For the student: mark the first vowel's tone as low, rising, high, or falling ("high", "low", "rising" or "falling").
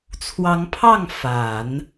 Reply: rising